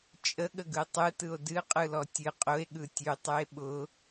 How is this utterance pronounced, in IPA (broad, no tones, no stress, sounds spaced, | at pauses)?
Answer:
t͡ʃʼ ə ɠ ə ɡ ɯ tˤ ɯ t ɯ o̯ d ɨ qʼ ɯ l ɔ tʲ ɨ qʼ ʊ e̯ ɠ ɯ tʲ ʉ tˤ ʉ e̯ ɓ ʊ